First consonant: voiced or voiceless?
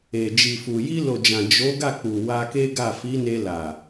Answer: voiced